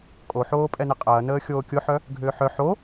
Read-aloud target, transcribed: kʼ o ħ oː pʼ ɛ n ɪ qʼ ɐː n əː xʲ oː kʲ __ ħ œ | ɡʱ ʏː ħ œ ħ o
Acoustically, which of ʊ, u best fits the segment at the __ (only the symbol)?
ʊ